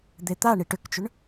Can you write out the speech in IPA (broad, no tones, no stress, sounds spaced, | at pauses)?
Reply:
d̪ e t̪ a ɳ i ʈ ʏ k t͡ʃ ʏ ɳ